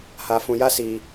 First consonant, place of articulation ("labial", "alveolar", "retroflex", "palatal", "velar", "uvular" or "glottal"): glottal